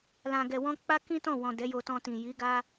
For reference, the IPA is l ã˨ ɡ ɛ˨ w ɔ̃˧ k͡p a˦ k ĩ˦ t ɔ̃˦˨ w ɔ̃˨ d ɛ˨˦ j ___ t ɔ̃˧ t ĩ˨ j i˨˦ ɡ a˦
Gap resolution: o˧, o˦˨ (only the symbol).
o˧